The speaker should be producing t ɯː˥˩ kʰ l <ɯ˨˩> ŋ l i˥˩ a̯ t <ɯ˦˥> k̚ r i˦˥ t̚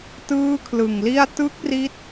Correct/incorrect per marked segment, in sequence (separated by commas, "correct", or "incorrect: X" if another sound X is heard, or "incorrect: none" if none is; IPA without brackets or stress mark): correct, correct